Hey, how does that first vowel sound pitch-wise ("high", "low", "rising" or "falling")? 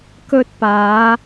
high